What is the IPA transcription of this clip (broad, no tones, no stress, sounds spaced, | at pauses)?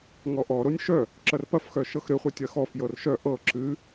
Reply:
ŋ ɔ ʔ ɔ ɾ o nʲ ʃ œ | ǁ ɐ r p ɐ f x œ ʃ ɤ x ɾ ɨ χʷ ɨ tʲ ɐ x ɔ f j ɤ r ʃ œ ʔ ɤ ǁ ɨ